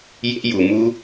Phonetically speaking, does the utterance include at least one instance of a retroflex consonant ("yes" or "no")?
no